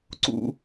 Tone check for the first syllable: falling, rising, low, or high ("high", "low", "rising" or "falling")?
high